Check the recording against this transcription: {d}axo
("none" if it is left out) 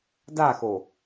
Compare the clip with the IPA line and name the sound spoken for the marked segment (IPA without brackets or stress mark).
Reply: d